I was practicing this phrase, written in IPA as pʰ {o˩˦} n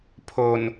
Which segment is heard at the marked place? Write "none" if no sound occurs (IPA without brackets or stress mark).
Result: o˨˩